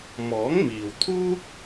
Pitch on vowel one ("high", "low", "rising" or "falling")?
rising